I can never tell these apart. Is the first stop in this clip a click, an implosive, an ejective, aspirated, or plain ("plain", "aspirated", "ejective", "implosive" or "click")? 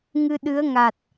implosive